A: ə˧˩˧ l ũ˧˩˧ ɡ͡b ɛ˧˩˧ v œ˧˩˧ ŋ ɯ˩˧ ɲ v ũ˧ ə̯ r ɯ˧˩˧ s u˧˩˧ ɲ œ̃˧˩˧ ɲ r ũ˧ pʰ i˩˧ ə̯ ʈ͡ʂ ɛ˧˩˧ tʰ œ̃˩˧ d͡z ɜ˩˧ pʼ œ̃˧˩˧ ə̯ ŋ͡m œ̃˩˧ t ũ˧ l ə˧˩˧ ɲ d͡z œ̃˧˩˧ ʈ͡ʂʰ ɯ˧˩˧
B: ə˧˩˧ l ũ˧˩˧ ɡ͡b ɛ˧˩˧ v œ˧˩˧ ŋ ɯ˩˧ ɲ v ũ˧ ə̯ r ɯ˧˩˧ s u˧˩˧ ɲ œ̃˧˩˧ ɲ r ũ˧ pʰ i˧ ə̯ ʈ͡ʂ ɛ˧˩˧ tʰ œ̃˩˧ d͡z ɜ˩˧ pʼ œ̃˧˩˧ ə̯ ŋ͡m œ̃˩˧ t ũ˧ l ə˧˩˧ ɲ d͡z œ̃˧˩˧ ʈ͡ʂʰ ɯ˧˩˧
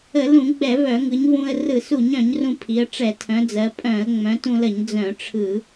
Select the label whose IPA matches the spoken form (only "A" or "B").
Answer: A